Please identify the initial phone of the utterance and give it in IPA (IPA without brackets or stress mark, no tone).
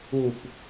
u